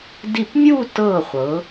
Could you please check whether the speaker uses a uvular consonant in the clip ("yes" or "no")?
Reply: yes